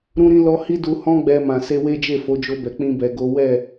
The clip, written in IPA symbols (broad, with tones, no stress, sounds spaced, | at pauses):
ɾ ũ˦ ɾ ĩ˦ l ɔ˦ h i˦ d u˧ h ɔ̃˦ ɡ͡b ɛ˧ m ã˨ s e˧ w e˦ d͡ʒ e˦˨ f o˨˦ d͡ʒ o˧ b ɛ˨ k͡p ĩ˧ b ɛ˨ ɡ o˨˦ w ɛ˦˨